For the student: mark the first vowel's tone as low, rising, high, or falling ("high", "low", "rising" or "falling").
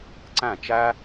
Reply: falling